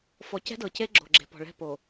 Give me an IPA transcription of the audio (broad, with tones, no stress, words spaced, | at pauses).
fɔ˨cɛ̤˦dɤ˨ce˦ ɡ͡ǁo̤˨ɡ͡ǁe̤˨pɔ̤˨ɭɛ̤˦˨ po˨